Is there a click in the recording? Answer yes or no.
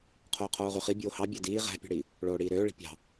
no